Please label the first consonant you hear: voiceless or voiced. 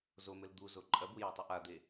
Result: voiced